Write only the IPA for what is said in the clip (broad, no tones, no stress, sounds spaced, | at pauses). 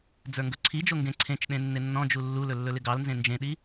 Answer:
d͡z ə˞ ŋ ɡ ɵ ǀʰ i d͡ʒ o ŋ ɡ ẽ ǀʰ ẽ t͡ʃ ɗ ẽ nː ɪ nː ɔ̃ d͡ʒ u lː u l ɵ lː ɵ l ɪ ɡ ɑ l n z ẽ n d͡ʒ ẽ ɗ i